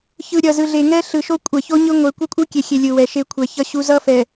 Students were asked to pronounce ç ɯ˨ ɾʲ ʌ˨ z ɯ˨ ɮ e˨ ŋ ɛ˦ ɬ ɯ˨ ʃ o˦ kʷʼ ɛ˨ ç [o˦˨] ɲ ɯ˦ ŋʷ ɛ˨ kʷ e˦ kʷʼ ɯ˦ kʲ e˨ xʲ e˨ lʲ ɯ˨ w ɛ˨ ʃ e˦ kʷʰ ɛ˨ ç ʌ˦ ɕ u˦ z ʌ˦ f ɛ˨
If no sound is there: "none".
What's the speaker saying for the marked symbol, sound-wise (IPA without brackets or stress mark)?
o˦